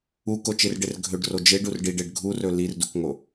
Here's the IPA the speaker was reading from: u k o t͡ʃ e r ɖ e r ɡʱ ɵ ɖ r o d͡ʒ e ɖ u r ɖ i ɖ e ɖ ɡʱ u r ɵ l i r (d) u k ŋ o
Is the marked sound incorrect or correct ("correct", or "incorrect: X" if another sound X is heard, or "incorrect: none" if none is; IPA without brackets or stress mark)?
correct